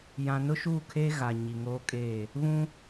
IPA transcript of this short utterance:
j ã˨ n ʊ˦ ʃ uː˦˨ kʰ eː˦ ɣ a˨ ɲ i˨ ŋ oː˦ kʼ eː˦˨ | β ũ˦

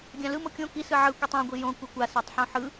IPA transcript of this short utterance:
ɡʲ ã l ɯ m o kʲ õ k i s ɯ ʕ ɯ kʷ i tˤ ã ɡʷ i j õ kʷ i kʷ a s a tˤ ħ õ ħ ɯ

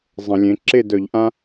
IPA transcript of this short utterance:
zˤ ə̃˧˩˧ lʲ ẽ˨˥ ǁ e˥˨ d œ˧˩˧ ʎ ʔ ã˦

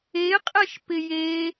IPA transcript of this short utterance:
e qʼ ɛ ʃ p ɪ j e

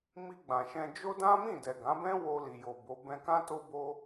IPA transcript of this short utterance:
m i˧ ɡ͡b ã˨ ʃ ɛ̃˧ d͡ʒ o˦ d ã˦ m ĩ˦˨ d ɛ˨ ɡ ã˨˦ b ɛ̃˦ w o˧ l i˨ j o˨ b o˨˦ b ɛ̃˧ k ã˦ t o˦ b o˦

